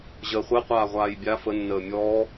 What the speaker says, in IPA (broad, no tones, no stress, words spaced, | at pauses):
ʑəːχʷɛqʷaː ʁʷaːjbʲa fənːəː mʲɔː